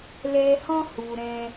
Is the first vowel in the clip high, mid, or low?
mid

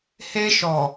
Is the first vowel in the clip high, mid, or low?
mid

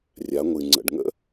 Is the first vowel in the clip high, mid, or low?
low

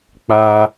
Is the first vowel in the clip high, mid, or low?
low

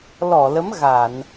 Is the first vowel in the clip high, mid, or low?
mid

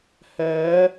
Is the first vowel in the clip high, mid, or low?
mid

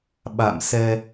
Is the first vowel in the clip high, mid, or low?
low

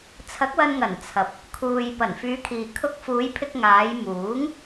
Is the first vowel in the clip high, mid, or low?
low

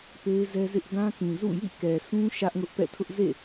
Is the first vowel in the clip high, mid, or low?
mid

